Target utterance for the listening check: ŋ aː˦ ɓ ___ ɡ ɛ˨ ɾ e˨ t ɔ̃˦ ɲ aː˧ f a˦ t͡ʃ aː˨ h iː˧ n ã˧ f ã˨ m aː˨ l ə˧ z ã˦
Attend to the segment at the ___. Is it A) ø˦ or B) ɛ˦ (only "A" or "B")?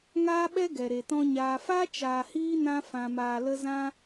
B